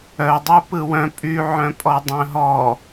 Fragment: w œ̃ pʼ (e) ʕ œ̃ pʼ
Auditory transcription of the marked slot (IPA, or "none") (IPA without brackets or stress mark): y